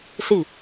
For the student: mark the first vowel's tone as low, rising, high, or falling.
falling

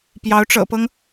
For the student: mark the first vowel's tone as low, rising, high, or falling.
rising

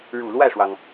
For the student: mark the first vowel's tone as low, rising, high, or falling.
low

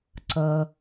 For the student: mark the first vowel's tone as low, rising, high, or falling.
low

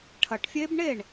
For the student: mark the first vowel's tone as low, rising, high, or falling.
low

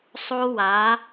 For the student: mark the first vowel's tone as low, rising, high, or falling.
high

